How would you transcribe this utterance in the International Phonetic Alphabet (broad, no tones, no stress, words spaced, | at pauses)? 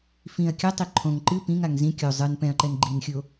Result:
fĩɐ̯ kʲɐtˤi ǃʰõŋ ǃɨ pĩŋaŋ zĩ kʲo zˤɨn pɛ̃ɐ̯ǃɛn ɡ͡ǃinxʲo